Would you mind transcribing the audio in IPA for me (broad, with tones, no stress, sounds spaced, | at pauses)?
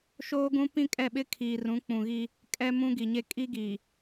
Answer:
ʃ oː˦ ɡ ũ˦ p ĩ˦ kʼ ɛ˦˨ ɓ ɪ˦ kʰ iː˨ r ũ˨˦ k͡p ũ˨ ɣ iː˦ | kʼ ɛ˦ m ũ˦ ɡ i˨ ɲ e˦ kʼ i˦ ɡ iː˨